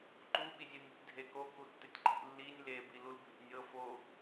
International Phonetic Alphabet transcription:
ǃu ɓizʲunʲutʲ dʱeko kutːɪtʲǃḭ lːinʲ lebi lulbʱḛnʲɤ fo

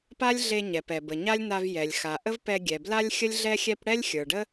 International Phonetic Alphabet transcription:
pa˥lʲɮe˧ ɲɛ˩pɛ˩bə˩ ɲa˥lʲna˧v jɛ˩lʲ xa˩ʔə˥v pɛ˧ɡʲɛ˩bla˥lʲ xʲə˥lʲɮɛ˥ xʲɛ˥p ɽɛ˥lʲxʲə˞˩ɖə˥

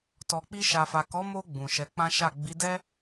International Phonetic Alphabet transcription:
tɔ˨k͡pi˧ ʃa˨fa˨ kɔ˨˦mo˧ ɡ͡bũ˨ʃɛ˨˦k͡pã˦ʃa˦˨ ɡ͡bi˨˦dɛ˦

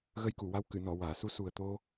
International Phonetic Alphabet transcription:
ɣə˧jku˨˩˨wa˧w kɨ˨˩˨nɔ˨˩˨ waː˨˩˨su˧ su˨˩ə̯t̪o˧

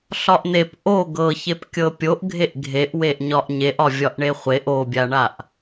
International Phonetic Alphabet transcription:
ɬɒʔn̪ep ʔo ɡɤçep kʲɤpʲoʔɡʱeʔ ɡʱeʔweʔ ɲɒʔɲeʔɒ vʲɒʔɳeχʷeʔ obʲaɳaʔ

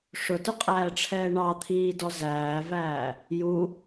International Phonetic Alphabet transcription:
ʂʊtʊqʼæːʈ͡ʂʰɛː ɳɑt̪ʰiːdɔ zæːvæː | ju

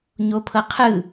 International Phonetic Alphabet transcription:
ɲopʰɤqʰɯ

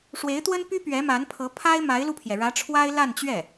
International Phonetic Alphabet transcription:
ʂwe˧˥ɪ̯t̪wə˥npy˥ pɥɛ˧˥ma˧˥npʰɤ˧˥ pʰa˥ɪ̯ma˧˥ɪ̯lu˧pʰjɛ˩ ɻä˧˥ʈ͡ʂʰwa˥ɪ̯ la˥˧nt͡ɕɥɛ˥˩

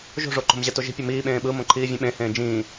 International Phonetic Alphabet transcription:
ʒo̤ʐo ǃo̤mʑɛtoʒi̤ pʲʌmiːɓẽː ɓɯ mõǃʰiːvʲɛ̃ɓẽ hẽːd͡ʒĩː

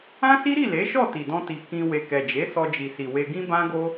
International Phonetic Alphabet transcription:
ã˦si˦ɾi˦˨ le˨˦ʃɔ˦˨ ti˨dɔ̃˧ti˨ kĩ˧ we˨kɛ˨d͡ʒe˨˦ sɔ˧d͡ʒi˨si˨ we˧ɡĩ˦bã˦ ɡo˦

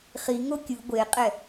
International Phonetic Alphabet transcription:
χiŋo kʲɯ ɡʷeqʼɛ

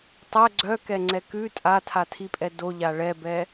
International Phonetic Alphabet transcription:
tˤɛ ɡ͡ǀœkɛŋ͡ǀɛ kʉ tʼatʰatʰipʼɛ doʎa ɭɛbɛ

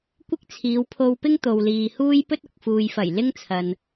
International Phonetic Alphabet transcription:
kʷɪ˥k̚t͡sʰiː˨˧wpʰo˧wpɪ˥ŋ t̪o˨wliː˨huː˥j pɵ˥t̚ʊ˨k̚ fuː˨jfɐ˨˩j lɪ˥ŋt͡sʰɐ˨n

